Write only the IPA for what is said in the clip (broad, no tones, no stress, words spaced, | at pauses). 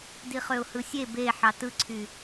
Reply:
diχøʊ̯hɯsʲe be ħɑtɯǀʰy